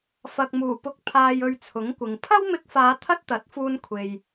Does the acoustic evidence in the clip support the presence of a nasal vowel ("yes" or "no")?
no